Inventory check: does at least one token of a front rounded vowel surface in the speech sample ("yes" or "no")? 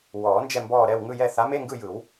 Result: no